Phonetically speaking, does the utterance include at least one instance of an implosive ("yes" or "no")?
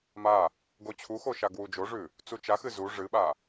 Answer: yes